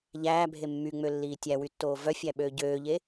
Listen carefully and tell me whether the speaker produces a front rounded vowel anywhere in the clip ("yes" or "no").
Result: yes